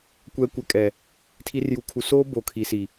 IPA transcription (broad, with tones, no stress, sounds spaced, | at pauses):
kʷ ɛ˨ kʷ ɛ˨ kʼ ɛ˨ | tʰ i˨ r j u˨˦ kʰ u˨ s oː˦ b o˨ kʰ i˨ s i˨